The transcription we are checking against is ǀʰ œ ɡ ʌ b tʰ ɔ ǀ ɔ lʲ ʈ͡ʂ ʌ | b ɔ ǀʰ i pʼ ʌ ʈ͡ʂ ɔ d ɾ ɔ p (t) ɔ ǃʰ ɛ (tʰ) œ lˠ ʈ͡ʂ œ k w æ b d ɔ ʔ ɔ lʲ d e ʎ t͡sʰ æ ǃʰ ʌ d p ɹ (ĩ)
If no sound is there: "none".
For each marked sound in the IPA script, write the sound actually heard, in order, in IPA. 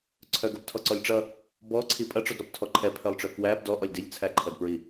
tʰ, pʰ, i

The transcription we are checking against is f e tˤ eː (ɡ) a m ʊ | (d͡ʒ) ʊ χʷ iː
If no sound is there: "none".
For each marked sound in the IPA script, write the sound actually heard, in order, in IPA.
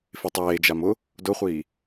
d͡ʒ, d

